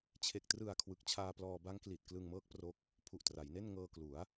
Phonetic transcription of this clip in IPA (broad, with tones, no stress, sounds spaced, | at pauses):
t͡ɕʰ e˨˩ k̚ t r ɯ˨˩ a̯ kʰ w ɯ˨˩ k̚ t͡ɕʰ aː˧ p l ɔː˧ b a˦˥ ŋ k l i˨˩ t̚ k l ɯ˧ ŋ m ɤː˦˥ k̚ p r o˦˥ k̚ | pʰ u˨˩ ʔ t r a˩˦ j n e˥˩ n ŋ ɤː˧ k l u˩˦ a̯